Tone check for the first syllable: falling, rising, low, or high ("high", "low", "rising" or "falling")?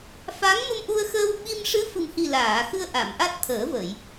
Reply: rising